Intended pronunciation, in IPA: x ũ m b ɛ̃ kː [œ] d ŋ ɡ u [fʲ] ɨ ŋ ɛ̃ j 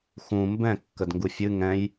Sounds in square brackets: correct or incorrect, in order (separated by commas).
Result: incorrect, correct